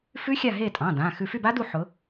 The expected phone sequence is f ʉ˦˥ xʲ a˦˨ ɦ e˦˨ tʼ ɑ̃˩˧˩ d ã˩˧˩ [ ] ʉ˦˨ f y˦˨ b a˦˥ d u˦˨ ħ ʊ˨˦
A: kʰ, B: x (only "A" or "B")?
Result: B